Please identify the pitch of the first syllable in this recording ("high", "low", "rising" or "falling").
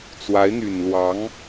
rising